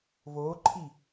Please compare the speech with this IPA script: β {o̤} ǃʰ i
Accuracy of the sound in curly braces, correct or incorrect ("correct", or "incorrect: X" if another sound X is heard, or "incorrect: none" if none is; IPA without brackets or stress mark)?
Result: incorrect: o